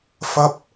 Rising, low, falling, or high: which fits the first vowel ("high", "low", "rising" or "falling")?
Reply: high